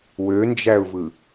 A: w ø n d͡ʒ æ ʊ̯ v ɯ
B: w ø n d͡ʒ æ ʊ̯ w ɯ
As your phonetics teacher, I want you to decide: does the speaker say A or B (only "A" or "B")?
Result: A